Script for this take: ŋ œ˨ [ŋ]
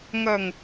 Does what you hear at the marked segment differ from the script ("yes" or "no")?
no